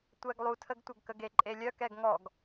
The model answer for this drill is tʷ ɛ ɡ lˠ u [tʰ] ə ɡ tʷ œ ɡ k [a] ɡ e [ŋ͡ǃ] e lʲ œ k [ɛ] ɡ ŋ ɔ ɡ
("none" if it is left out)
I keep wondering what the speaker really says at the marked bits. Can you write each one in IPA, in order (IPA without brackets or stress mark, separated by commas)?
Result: tʰ, ə, ǃʼ, ɛ